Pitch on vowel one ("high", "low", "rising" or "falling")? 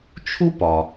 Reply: high